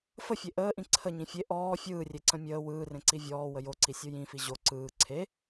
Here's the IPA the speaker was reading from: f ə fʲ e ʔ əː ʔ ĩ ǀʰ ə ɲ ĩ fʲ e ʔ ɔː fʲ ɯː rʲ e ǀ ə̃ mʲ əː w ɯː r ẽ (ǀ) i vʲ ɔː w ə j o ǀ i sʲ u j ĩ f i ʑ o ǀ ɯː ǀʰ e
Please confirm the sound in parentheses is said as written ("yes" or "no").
yes